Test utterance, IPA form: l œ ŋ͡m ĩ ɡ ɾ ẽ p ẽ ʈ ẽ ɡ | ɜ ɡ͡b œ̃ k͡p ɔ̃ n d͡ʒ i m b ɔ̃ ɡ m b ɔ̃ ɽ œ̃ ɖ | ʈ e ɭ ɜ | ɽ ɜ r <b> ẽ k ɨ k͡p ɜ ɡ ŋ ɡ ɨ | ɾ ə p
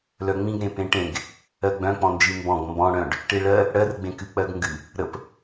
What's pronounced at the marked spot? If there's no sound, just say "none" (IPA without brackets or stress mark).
ɡ͡b